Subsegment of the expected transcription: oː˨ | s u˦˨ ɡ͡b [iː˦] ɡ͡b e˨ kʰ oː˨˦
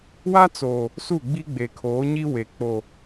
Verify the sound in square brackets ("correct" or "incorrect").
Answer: incorrect